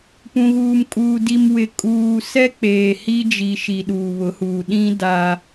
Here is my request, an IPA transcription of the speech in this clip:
p ũ˨ ɣ uː˨ m kʼ uː˨ d i˨ m w ɪ˨ kʼ uː˨ s ɛ˦ k͡p eː˨ h i˦ d͡ʒ i˨ ʃ i˨ ɗ uː˨ β ʊ˨˦ h uː˨ ɗ ĩ˦ d a˦

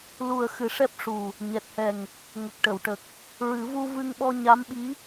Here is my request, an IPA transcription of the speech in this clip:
l u˨˩ ə̯ x ɨ˨˩˦ ʂ ɛ˦˥ p̚ ʂ u˨˩ | ɲ ɛ˨˩ t̚ h ɛ˨˩ ŋ | ŋ ə˨˩ k̚ ʈ ə˨˩˨ w ʈ ə˨˩ k̚ | ɹ ɨ˨˩˦ v u˧ v ɨ˧ ŋ ɓ ɔ˧ ɲ a˧˥ m ɓ i˧˥

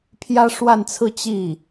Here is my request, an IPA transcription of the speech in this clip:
pʰ j ä˥ ʂ w a˥˧ n t͡sʰ ɹ̩˥˧ t͡ɕ i˥˩

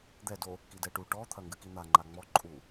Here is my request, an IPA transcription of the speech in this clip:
d̪ ɛ d o | k i d ɛ ʈ u ʈ ɔ t̪ʰ ɐ ŋ ɡ ɨ k i n̪ a ŋ͡ǃ a ŋ͡m ɔ ǃʼ u

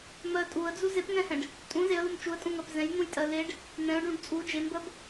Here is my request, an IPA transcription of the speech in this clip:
m ɜ tʼ u ə̯ d͡z u z e p ŋ ɛ̃ h ɛ̃ ɖ | tʼ ũ z e ə̯ l u m t͡ʃ u ə̯ tʼ ũ ŋ ɜ p z ɛ̃ j n̪ ũ j tʼ ɜ l e ɖ | n̪ ɛ̃ ʊ̯ ɖ ũ ɖ t͡sʼ u d͡ʒ e m b ɜ b

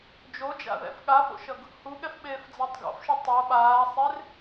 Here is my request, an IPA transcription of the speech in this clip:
d͡ʒ o d͡ʒ a̰ ð ɛ̰ f ɠ a f o̰ ʃ ʌ ɡ | h u ɠ ɛ f ɓ eː f d͡z a tˤ ɡ o̰ f ʃ ɯ tˤ o ɓ aː sˤ e r

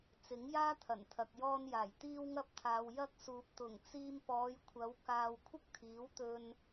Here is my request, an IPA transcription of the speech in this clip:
t͡s ɪ˨˥ ŋ j aː˥ t̪ʰ ɐ˨˩ n t̪ʰ ɐ˨ k̚ j ɔː˧ n j aː˨˩ j t̪ iː˧ w ŋ ɐ˧ p̚ t̪ʰ aː˨ w j ɐ˧ k̚ s uː˨ p̚ t̪ ʊ˨˩ ŋ t͡s iː˧ m p ɔː˨˧ j kʷʰ ɐ˨˧ w k aː˧ w kʷʰ ɪ˥ k̚ t̪ʰ iː˨˥ w t̪ ɵ˧ n

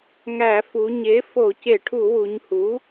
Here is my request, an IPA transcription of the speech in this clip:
ŋ æ˧˩˧ f u˩˧ ɲ e˩˥ f o˧˩˧ c e˧˩˧ ʈʰ u˧˩˧ w u˩˧ ɲ h u˩˥

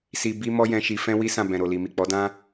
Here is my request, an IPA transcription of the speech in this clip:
s i˧ b i˦ m ɔ˦ j ɛ̃˧ ʃ i˧ f ɛ̃˦ w i˦ s ã˦˨ b ɛ̃˨ ɾ o˨ l i˨ m i˨ k͡p ɔ˨˦ d ã˦

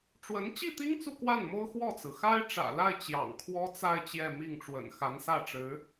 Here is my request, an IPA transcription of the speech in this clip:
ʈ͡ʂ w ə˧˥ n t͡ɕ i˥˩ t̪ i˥ ŋ t͡s u˥˧ k w a˥˩ n m o˥ ʊ̯ x w ɔ˥˩ t͡s ɹ̩˩ x a˥ ɪ̯ ʈ͡ʂ ä̰˨˩ l a˥˩ ɪ̯ t͡ɕ j ɑ̰˨˩ ŋ kʰ w ɔ˥ t͡s a˥˧ ɪ̯ t͡ɕ j ɛ˥˧ m i˥˩ ŋ ʈ͡ʂ w ə̰˨˩ n x a˧˥ n s ä˥˩ ʈ͡ʂ ɻ̩˧˥

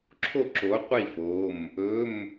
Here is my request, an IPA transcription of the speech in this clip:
ǁʰ o˥˨ ǁ o˨˥ qʷ i˥˨ f o˩˧˩ m | ɵ˧˥˧ m

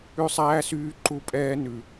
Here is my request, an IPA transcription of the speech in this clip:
ʉ˦ sˤ æː˦ s yː˦ ǃ u˦ pʼ ɛː˦ n ʉ˨

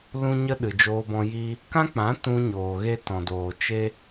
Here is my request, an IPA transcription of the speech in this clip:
l ũ˧ ɲ ə˧ ɗ ɨ˨ d͡ʒ oː˧ b ɔ̃˧ j i˧ | k ã˦ k͡p ã˨˦ t ũ˧ ɲ oː˨ ɣ e˧ t ɔ̃˨ d oː˨ t͡ʃ e˧

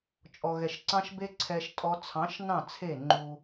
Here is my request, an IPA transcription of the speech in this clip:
t͡ʃʼ ɔ˨ ɣ ɛ˨ ʃ ǀ ɑ̃˦ ʃ b e˦ ǀʰ ɛ˦ ʃ tʼ ɔ˦ t͡sʰ ɑ̃˨˦ ʃ n ɑ̃˦˨ t͡sʰ e˦˨ ŋ͡ǃ u˦

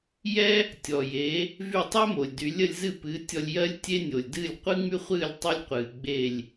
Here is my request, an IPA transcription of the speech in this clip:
j ɛ˥ | tʲ ɔ˩ j e˩˥ | v y˥˩ tˤ ɛ˥ m o˩ lʲ d y˩˥ lʲ ə˧ lʲ z ɨ˥˩ p ɨː˩˥ tʲ ɔ˧ lʲ j ɜ˥ lʲ tʲ e˥ nʲ o˩ lʲ d ɨː˥˩ lʲ qʷ ɨ˥ ŋ͡m y˥ χʷ ɨː˥˩ lʲ tˤ y˧ lʲ qʷ ɨː˩ ɡ͡b e˥˩ lʲ

